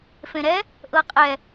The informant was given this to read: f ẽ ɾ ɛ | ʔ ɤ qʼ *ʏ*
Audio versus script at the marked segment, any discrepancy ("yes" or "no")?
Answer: yes